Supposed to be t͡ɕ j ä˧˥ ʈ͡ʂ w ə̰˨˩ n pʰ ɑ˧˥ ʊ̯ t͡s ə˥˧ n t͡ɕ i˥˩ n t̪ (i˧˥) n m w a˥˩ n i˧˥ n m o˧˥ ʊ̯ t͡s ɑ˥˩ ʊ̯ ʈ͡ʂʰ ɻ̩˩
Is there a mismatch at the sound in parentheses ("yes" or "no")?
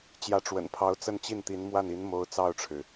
no